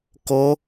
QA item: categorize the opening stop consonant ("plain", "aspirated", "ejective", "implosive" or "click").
plain